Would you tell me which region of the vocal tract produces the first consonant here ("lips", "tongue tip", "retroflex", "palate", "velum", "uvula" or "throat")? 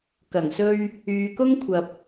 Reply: velum